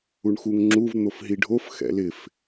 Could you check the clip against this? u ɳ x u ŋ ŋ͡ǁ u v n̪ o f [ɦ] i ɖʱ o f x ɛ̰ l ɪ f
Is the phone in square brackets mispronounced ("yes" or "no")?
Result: no